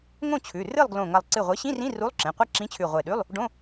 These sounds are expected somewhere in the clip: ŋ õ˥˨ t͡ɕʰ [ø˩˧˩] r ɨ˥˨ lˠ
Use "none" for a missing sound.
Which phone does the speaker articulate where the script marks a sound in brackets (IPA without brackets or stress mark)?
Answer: ʉ˩˧˩